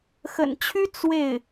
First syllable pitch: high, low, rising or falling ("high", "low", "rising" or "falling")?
low